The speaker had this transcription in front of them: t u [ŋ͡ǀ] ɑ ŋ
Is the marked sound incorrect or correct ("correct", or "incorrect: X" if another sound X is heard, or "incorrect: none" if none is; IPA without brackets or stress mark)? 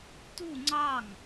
correct